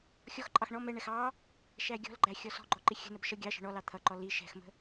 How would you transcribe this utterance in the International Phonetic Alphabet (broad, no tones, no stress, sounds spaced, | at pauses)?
xʲ ɔ x ǃʼ ɑ x ɳ ɔ m ɛ ɳ ɛ x ɑ | ʃ æ ɡʲ ɔ̤ l ɡ͡ǃ æ xʲ ɔ s ɔ̤ ɡ͡ǃ ɔ ǃ i xʲ ə̤ n ə b ʃ ʌ ɡʲ ɑ ʃ ə̤ ɳ ɔ l ɑ t̪ʰ ʌ ǃ ɔ l i ʃ ɛ̤ x m ə̤